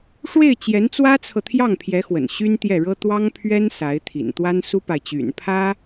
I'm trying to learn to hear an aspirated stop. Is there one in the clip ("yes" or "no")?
yes